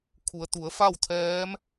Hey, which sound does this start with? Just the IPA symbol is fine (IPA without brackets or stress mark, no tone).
kʰ